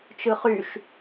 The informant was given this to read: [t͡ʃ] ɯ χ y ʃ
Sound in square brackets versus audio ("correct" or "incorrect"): correct